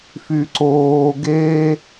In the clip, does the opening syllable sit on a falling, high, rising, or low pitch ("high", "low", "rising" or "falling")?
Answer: high